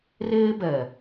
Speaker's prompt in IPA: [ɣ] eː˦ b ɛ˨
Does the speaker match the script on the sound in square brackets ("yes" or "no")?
no